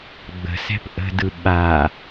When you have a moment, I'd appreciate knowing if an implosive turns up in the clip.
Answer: yes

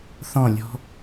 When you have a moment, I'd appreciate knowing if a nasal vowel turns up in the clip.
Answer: yes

